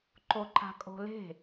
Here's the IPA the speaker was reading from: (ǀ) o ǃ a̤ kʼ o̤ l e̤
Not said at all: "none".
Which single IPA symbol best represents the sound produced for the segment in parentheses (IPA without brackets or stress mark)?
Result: ǃ